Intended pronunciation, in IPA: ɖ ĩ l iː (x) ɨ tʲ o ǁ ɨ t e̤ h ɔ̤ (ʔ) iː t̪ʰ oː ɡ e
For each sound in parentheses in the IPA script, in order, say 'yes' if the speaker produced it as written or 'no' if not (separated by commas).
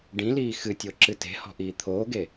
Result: yes, yes